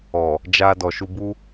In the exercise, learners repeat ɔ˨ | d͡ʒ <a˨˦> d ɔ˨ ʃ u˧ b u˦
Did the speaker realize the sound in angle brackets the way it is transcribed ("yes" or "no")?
no